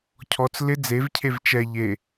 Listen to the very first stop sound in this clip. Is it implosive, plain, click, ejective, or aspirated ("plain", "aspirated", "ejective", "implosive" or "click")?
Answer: aspirated